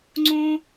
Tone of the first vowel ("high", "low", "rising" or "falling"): high